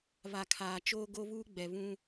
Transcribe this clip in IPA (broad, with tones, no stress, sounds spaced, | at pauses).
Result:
β a˨ kʰ aː˨ t͡ʃ oː˦ ɡ o˦ β uː˦ ɡ͡b ɛ˨ β ũ˦